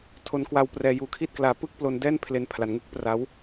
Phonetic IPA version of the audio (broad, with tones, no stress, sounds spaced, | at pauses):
tʰ o˧ n k w a˧ w p r ɛː˧ j uː˧ kʰ i˥˩ t̚ k l aː˧ p ɯ˥˩ k̚ p l o˧ n d ɛː˥˩ n pʰ l e˧ n pʰ l a˩˦ n ŋ u˦˥ k̚ p r a˦˥ w